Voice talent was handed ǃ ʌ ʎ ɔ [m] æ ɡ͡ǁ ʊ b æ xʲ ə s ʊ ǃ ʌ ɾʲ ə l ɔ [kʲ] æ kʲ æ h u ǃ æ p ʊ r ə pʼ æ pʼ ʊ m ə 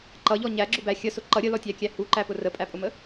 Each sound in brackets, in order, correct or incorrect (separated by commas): incorrect, incorrect